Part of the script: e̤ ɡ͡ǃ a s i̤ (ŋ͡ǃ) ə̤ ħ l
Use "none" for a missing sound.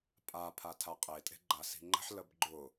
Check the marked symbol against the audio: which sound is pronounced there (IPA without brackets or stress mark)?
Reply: ŋ͡ǃ